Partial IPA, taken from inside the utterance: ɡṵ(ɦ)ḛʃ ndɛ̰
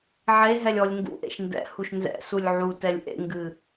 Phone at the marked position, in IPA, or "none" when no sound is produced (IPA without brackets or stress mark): ʔ